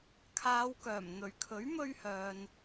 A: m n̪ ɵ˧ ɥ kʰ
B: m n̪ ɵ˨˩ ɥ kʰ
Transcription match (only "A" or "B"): B